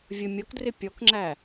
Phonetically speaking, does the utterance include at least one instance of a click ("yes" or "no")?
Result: yes